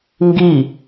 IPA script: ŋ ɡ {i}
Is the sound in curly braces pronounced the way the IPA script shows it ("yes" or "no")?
yes